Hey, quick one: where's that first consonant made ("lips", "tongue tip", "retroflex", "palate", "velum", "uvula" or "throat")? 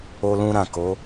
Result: tongue tip